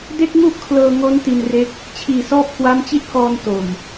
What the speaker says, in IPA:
d e˥˩ k̚ ŋ u˥˩ ʔ kʰ l ɤː˧ ŋ o˦˥ n t i˧ n r e˦˥ k̚ | t͡ɕʰ iː˨˩ s ɔː˦˥ p̚ k w a˦˥ m t͡ɕ i˥˩ t̚ k ɔː˧ n t o˨˩ m

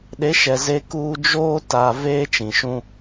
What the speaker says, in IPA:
ɗ e˨˦ ʃ ɛ˨ z e˦ k uː˦ d͡ʒ oː˦ t a˦ v eː˦ t͡ʃ ĩ˨ ʃ ũ˦

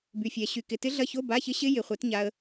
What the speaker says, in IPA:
b y˨ fʲ ɛ˨ ɕ y˨ k ɪ˨ t ɪ˦˥ ɮ ɐ˧˥˧ ç o˧˥˧ b a˧˥˧ ç ɪ˦˥ ɕ ɪ˦˥ j ɪ˨ χʷ ɛ˨˦ t ɲ a˨ ə̯

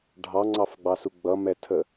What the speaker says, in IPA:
ɖʱ ɑ ŋ͡ǀ ɑ f ɡ͡b ɑ s u ɡ͡b ʌ m ɛ tʰ ə

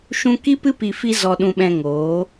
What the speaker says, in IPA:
ʃ ũ˦ k i˦ p ɨ˦ p i˧ f i˦ z ɔ˧ ɗ ũ˧ ɓ ɛ̃˧ ŋ oː˨˦

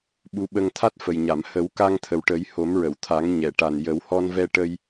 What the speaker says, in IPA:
ɓ u˧ ɓ ə˧ ŋ t̪ʰ a˦˥ t̚ f ə˨˩ j ɲ a˨˩˨ m h ə˨˩˦ w k a˧ ŋ t̪ʰ ə˨˩ w ʈ ə˨˩˦ j h o˨˩˦ m ɹ ə˨˩˨ w t̪ʰ a˨˩˦ ŋ ɲ ɛ˨˩˨ ʈ a˨˩ n j ə˨˩˦ w h ɔ˧ n v ɛ˧ ʈ ə˧ j

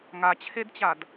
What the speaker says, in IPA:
ŋ a t͡ɕʰ e d t͡ɕ a d

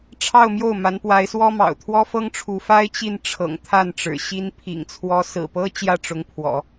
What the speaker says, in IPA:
ʈ͡ʂʰ ɑ˥˧ ʊ̯ m j o˥˩ ʊ̯ m a˧˥ n p w a˧˥ ɪ̯ s w ɔ˥ m ɑ̰˨˩ ʊ̯ t̪ʰ w ɔ˥ f ɤ˥ ŋ ʈ͡ʂʰ u˧˥ f a˥ ɪ̯ t͡ɕ i˥˩ n ʈ͡ʂʰ ɤ̰˨˩ ŋ t̪ʰ a˥˩ n ʈ͡ʂ ɻ̩˨˩ ɕ i˥ n pʰ ḭ˨˩ ŋ t͡sʰ w ɔ˧˥ s ɹ̩˨˩ p ɤ˥ t͡ɕ j ä˥˩ ʈ͡ʂ ʊ˧˥ ŋ pʰ w ɔ̰˨˩˦

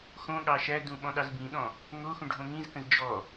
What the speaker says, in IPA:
x õ ɠ ɑ ʃ æ d ũ ɓ ɔ̃ ɗ ɑ z b ĩ ɗ ɔ̃ | ŋ o x ũ ɖʱ õ ŋ ĩ z k ə̃ z d͡ʒ ɔ

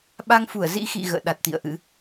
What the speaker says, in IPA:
ɓ a˧ ŋ f u˧˩ ə̯ z ḭ˧˥ x ḭ˧˨ ɣ ə̰ː˧˨ ɗ a˨˩ t̚ t̪ ḭ˧˨ ə̯ ʔ ɨ̰˧˥

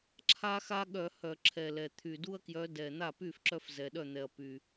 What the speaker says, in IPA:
ǁʰ a˦ x a˦ ɠ œ˧˩˧ h œ˧˩˧ ǁʰ ɛ˨˩ l ɛ˨˩ t̪ʰ y˨˩ d u˦ ɐ̯ k j œ˨˦ d ɛ˨˩ n̪ a˥˩ p y˥˩ f ǁ œ˦ f z ɛ˨˩ ɗ œ˥˩ n̪ ɛ˨˩ ɐ̯ p y˨˩

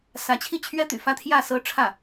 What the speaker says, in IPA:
s ä˧˥ t͡ɕʰ i˥˩ t͡ɕʰ ɥ ɛ˥ t̪ y̰˨˩ f ä˥˧ t̪ʰ j ä˥˩ s ɤ˥ ʈ͡ʂʰ ä˥˩

